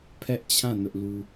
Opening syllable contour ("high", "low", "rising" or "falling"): high